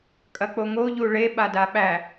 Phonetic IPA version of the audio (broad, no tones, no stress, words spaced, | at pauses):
kʼɐk͡poŋo ʎuɭe ɓadaɓæ